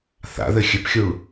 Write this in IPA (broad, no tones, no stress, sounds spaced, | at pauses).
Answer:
θ a̰ ð ɘ xʲ ɘ p xʲ u ɭ